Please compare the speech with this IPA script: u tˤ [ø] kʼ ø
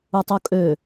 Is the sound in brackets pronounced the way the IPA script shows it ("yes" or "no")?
no